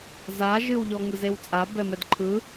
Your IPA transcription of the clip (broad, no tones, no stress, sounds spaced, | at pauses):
z a ʒ ɨ w ʎ ɔ ŋ ɯ z e w t͡sʼ a b ɛ m ɛ d ǃʰ ɯ